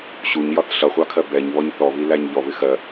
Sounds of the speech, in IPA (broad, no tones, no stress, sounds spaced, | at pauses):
ɕ u ɲ j ɒ θ ɬ ʌ χʷ ɑ kʰ ɜ b ɛ ɲ β ɔ ɲ θ ɔ β i l æ ɲ ʎ ɔ β ɪ x ɜ